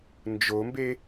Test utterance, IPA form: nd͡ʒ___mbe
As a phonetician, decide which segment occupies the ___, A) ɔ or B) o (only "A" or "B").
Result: B